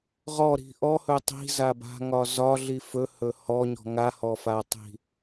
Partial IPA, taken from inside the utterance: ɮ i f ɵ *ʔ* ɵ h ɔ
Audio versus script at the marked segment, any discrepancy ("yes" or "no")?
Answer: yes